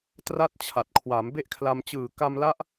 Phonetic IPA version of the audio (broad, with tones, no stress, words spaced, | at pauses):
tra˥˩t̚t͡ɕʰa˨˩t̚kʰwa˩˦m be˥˩ʔkʰla˧m t͡ɕɯː˨˩ka˧mla˦˥ʔ